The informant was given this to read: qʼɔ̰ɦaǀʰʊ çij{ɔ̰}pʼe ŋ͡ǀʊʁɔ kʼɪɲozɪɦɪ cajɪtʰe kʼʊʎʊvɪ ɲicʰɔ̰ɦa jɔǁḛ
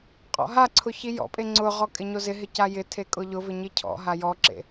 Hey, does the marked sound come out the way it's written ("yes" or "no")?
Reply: yes